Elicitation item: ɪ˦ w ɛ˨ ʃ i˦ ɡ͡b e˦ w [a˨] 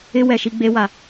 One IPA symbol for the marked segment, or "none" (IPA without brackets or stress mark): a˨